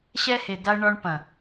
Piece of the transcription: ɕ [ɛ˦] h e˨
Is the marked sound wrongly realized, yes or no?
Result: no